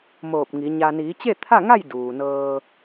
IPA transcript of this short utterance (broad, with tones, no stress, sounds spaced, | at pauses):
m oː˧˩ p̚ ŋ i˩˧ ɲ a˧ n iː˩˧ t͡ɕ e˥˨ t̪ʰ a˥˨ ŋ a˥˨ j d uː˩ n ɤː˧